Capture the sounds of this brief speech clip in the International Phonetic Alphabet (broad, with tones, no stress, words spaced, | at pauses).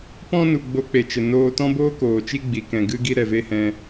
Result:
pɔ̃˦nu˨ ɡ͡bo˧k͡pe˨t͡ʃə˨ noː˧tɔ̃˦boː˦ koː˨t͡ʃi˦ɡ͡bi˨kɛ̃˨ ɡɨ˦ɡi˦ ɾɛ˨ve˦hɛ̃˧